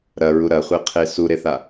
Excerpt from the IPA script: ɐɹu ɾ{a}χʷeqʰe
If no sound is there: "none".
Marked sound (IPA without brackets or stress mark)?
ɐ